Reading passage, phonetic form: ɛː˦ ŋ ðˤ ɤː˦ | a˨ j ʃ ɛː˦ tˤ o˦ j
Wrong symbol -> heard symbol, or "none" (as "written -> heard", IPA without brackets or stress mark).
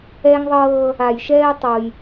none